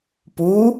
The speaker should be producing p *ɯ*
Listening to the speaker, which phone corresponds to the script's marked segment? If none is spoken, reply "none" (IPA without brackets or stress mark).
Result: u